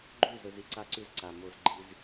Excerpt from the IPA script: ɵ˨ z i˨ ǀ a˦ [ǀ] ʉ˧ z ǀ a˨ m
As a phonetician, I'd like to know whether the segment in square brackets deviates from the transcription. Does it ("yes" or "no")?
no